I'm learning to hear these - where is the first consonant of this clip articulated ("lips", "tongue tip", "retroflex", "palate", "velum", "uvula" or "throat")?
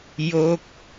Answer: palate